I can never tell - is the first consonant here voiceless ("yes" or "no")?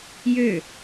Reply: no